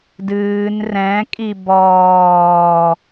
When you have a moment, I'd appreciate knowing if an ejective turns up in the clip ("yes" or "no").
yes